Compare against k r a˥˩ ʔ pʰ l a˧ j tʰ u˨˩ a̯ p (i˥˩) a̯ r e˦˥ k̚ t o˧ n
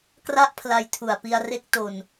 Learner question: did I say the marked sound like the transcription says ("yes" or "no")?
no